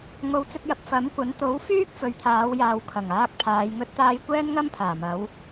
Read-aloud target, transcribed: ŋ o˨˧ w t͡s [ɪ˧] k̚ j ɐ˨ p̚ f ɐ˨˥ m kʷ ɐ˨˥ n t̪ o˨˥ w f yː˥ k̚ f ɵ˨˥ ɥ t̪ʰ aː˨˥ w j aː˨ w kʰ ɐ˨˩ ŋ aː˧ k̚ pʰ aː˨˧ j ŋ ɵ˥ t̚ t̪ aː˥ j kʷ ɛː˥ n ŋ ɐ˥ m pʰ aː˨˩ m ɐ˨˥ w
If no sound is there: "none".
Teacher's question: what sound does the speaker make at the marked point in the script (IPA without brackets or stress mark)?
ɪ˧